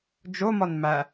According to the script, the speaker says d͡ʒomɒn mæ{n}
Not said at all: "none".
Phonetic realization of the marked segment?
none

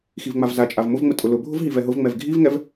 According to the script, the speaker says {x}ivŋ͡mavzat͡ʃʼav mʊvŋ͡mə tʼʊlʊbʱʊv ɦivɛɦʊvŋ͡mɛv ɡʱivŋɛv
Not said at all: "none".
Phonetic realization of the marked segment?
x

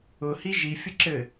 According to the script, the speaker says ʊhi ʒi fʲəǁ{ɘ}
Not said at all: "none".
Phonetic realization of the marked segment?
ɘ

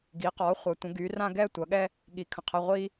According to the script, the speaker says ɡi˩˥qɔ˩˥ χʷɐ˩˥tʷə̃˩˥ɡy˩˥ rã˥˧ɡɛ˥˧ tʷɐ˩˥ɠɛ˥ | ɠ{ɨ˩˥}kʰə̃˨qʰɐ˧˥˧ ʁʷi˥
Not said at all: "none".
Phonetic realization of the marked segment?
i˩˥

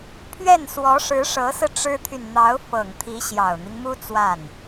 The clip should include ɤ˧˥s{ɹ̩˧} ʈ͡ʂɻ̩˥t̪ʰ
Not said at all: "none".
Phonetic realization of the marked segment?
ɹ̩˧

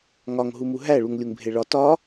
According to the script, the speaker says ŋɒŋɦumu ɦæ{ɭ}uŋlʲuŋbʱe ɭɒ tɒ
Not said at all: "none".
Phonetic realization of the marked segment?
ɭ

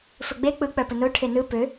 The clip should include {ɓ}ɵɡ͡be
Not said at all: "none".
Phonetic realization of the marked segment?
f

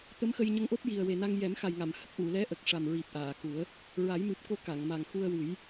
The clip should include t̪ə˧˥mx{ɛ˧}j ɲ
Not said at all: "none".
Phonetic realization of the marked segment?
ə˧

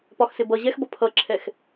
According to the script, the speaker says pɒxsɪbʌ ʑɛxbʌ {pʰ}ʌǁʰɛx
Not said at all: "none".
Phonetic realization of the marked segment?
pʰ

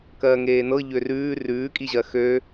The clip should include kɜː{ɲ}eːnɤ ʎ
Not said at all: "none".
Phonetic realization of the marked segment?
ŋ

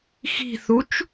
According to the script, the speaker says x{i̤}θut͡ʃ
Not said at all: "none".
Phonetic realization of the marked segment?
i̤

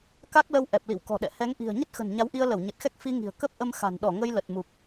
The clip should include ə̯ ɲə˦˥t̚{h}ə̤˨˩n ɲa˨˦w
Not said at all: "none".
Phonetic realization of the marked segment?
x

